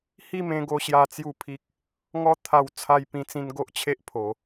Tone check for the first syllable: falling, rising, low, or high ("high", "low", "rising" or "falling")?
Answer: falling